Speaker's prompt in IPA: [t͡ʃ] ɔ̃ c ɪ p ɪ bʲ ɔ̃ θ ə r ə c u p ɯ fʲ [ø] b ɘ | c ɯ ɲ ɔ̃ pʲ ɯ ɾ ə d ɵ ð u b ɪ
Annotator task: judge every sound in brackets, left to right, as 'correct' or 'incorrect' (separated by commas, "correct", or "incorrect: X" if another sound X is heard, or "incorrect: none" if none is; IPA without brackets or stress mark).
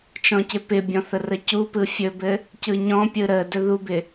correct, incorrect: ɵ